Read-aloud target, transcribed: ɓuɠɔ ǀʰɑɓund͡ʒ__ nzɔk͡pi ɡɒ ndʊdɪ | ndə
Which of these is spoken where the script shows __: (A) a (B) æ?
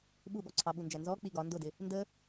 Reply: B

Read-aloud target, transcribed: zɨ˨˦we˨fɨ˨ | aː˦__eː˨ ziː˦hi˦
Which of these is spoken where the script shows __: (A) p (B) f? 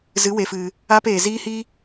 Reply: A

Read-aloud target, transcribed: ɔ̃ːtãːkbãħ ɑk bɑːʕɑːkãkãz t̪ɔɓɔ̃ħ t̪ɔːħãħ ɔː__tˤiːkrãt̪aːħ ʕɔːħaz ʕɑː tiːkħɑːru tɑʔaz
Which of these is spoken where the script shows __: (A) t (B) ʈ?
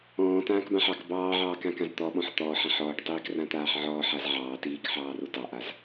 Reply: B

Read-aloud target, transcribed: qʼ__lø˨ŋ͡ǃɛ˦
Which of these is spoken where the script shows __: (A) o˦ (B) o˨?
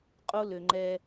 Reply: A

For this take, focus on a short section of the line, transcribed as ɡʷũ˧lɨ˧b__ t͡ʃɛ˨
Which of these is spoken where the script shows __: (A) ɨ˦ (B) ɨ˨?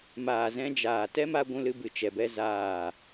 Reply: B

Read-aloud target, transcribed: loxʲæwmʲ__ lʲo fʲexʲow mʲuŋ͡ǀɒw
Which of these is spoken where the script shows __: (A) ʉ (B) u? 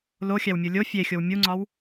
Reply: B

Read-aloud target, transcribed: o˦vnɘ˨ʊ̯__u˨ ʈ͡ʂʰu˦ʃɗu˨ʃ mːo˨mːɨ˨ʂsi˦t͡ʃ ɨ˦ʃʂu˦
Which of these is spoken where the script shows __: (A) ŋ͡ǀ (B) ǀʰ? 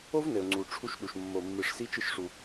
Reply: A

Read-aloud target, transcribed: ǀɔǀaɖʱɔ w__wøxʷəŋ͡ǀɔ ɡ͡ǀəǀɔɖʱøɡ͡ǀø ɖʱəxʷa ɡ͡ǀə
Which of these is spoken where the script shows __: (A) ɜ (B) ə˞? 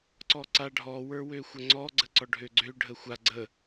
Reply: B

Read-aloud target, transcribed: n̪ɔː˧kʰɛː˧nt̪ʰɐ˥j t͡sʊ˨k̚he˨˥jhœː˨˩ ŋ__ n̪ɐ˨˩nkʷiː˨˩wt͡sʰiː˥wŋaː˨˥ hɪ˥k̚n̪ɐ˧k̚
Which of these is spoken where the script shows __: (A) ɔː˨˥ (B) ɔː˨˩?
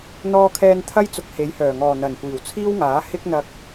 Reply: B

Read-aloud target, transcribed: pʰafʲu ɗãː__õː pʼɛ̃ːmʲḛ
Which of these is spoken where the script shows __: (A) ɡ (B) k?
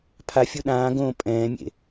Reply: A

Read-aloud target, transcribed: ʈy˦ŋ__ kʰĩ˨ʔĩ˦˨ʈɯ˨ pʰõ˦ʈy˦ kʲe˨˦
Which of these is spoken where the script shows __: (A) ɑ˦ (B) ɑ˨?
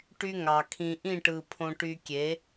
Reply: B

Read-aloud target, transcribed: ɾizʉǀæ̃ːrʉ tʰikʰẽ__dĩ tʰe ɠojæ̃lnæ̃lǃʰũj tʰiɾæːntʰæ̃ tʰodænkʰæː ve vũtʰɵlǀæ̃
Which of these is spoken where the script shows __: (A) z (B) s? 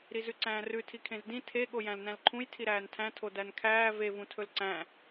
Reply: A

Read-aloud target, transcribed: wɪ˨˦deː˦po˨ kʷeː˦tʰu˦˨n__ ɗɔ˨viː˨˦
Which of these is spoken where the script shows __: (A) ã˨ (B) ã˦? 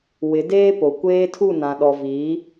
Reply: A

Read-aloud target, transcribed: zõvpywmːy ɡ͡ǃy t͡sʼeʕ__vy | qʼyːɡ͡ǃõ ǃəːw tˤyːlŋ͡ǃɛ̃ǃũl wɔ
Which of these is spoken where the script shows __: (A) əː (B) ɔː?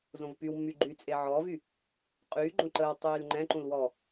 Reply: B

